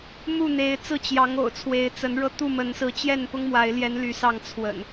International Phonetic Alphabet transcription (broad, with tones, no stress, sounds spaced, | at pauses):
m u˥˨ n̪ e˨˦ ɪ̯ t͡s ɹ̩˥˨ t͡ɕ j ɑ˨˦ ŋ o̰˨˩ ʊ̯ t͡sʰ w e˨˦ ɪ̯ t͡s ə˨˦ n ɻ ɤ˧ t̪ u˥˨ m ə˨˦ n s ɹ̩˨˦ t͡ɕ j ɛ˥˨ n p ʊ˦ ŋ m w a˨˦ ɪ̯ l j ɛ˨˦ n l y˨˦ s ɑ˥˨ ŋ t͡sʰ w ə̰˨˩ n